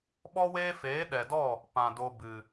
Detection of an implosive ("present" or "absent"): present